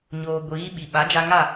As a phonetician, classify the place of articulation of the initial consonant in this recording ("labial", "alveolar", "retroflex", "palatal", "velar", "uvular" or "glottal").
palatal